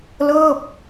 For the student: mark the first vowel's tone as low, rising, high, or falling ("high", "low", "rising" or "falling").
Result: falling